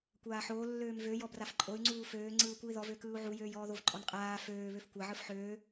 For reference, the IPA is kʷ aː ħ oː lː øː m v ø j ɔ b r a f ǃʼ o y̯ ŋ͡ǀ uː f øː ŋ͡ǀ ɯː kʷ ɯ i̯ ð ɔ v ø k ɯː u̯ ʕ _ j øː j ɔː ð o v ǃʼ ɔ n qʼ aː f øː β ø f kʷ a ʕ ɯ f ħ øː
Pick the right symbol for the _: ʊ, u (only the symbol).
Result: u